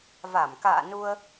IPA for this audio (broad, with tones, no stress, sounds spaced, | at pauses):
v a˧˩ m k a̰ː˧˨ n u˧ ə̯